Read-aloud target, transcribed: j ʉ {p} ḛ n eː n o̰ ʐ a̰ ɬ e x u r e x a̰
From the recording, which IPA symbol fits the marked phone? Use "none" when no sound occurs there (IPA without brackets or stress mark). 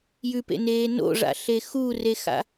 p